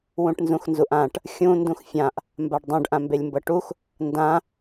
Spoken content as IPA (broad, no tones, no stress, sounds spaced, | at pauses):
w ũ ʈ n z ũ x n z u ʔ ã ʈ | xʲ ũ n d ũ x fʲ ã ʔ | m b a ɖ dˤ ũ ɖ ʔ ã m b e lʲ m b ɤ ʈ u x | n d ã